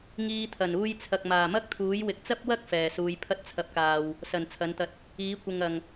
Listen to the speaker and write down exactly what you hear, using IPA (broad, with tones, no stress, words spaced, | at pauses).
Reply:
ŋiː˧t̪ʰɐ˨˩n uː˧jt͡sʰɐ˨k̚maː˨˩mɐ˥k̚ t̪ʰuː˨˥jwɪ˨˥k̚ t͡sɐ˥p̚wɐ˥k̚ fɛː˨˩suː˨˧j pʰɐ˥t̚t͡sʰɐ˧p̚kaː˨w | sɐ˨˩n t͡sʰɐ˨˥nt̪ɐ˧t̚ | iː˨˥kʷɪ˨ŋ ɐ˨˩ŋ